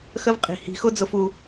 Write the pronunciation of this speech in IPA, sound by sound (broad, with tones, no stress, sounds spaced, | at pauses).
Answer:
x ə˦ v qʼ i̤˨ h i̤˨˦ x ʊ˦ d͡z ʊ˧ f u˧